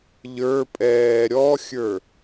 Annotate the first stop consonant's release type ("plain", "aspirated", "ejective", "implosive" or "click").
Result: ejective